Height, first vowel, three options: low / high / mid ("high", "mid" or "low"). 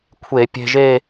mid